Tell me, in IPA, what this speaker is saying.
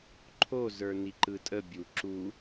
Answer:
ǃʰozə˞ niǃɯtʼə bʲu ǁu

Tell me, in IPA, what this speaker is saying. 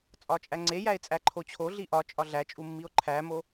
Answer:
t͡sʼɒt͡ʃʼæŋ͡ǀe jæe̯t͡sʼæǃʰot͡ɕʰo ɮiʔɒ t͡ʃʼɒɮæt͡ʃʼumːio̯ ǃʰæmo

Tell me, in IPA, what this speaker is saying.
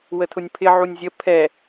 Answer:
wətʰʊnʲpʰɪ ʕunʲzʲə pʰɛ

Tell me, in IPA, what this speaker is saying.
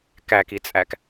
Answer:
kækit͡sʼæk

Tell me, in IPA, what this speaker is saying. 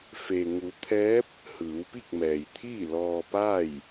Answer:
fe˩ŋu˩˧t̪ʰɛː˧˥p̚ | hɯː˩˧wpi˥˨k̚mɛː˩jt̪ʰiː˥˨ lɔː˧paː˥˨j

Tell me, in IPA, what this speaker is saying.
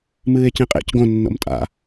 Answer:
mɨːe̯cĩqʼḛc ɡõ nːo̰mtʼa̰

